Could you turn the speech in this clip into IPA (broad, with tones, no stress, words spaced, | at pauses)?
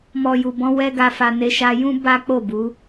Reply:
mɔ˨ju˨bɔ̃˧ wɛ˧ɡa˨fa˨ ne˧ʃa˧jũ˦ ba˦k͡po˦˨bu˨˦